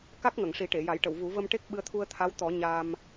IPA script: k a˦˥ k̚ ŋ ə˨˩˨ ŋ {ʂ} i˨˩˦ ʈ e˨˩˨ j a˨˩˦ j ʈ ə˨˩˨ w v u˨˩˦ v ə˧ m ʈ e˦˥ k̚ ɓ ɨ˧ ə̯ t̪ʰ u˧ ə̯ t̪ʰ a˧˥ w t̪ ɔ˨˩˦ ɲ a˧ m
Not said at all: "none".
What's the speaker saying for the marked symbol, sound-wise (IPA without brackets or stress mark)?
ʂ